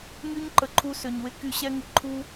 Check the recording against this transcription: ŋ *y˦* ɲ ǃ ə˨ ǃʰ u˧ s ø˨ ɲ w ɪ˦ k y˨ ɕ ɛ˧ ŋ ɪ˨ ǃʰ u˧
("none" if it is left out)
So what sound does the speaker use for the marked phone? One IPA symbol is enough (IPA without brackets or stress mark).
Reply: y˦